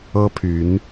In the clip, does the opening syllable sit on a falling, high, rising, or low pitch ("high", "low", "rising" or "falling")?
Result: high